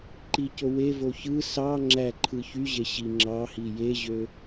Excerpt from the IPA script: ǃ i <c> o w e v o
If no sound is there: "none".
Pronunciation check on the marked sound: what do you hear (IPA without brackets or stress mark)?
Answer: c